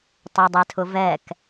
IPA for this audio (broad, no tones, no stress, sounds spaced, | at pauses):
tˤ ɛ dˤ ɛ tʰ ʊ v ɛ k